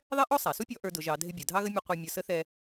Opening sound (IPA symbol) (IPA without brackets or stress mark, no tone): ðˤ